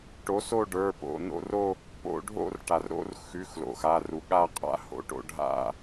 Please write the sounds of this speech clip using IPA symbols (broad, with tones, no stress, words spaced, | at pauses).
ʈo˨˥so˥˧ ɖə˞˩˧˩po̰˩˧˩no̰˥˧ro˥˧ | po̰˥˧ ɖʱo̰˥˧rʈa˩r ɾo̰˥˧rxʉ˩˧˩x lo̰˩xa˩˧˩ru˩ ɠa˥˧qʼa̰˥˧ ho̰˥˧ʈo̰˥˧ ɖʱa̰˥˧